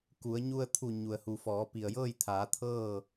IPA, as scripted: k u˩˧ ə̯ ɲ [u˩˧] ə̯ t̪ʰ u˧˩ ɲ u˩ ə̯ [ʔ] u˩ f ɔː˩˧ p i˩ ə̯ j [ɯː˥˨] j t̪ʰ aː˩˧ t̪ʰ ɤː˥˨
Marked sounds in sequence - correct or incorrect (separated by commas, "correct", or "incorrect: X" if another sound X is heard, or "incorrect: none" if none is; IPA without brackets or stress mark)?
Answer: incorrect: u˧, incorrect: h, incorrect: ɤː˥˨